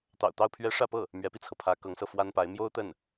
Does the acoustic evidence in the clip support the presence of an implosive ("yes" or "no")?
no